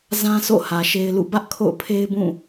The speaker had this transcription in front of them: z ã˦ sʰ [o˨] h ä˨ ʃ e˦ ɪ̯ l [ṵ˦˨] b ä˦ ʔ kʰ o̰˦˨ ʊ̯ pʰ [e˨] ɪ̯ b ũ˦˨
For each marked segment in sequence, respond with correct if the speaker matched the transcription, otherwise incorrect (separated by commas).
incorrect, correct, incorrect